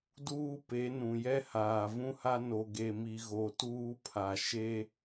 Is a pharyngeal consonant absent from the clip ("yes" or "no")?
yes